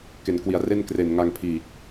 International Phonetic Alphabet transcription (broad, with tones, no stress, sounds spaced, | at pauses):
k e˩˦ n k w i˩˦ a̯ r e˥˩ n k r e˨˩ n ŋ a˧ ŋ pʰ iː˨˩ k̚